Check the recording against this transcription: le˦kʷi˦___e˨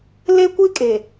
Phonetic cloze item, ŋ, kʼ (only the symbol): kʼ